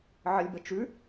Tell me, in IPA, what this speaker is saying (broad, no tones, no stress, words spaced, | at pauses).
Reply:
ʕəlʲbət͡ʃʉ